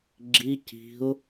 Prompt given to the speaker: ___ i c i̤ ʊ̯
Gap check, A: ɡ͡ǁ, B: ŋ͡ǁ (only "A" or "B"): A